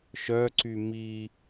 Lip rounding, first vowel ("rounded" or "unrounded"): rounded